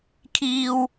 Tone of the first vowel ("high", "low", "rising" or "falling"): high